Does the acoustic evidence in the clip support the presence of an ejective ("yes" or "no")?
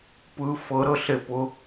no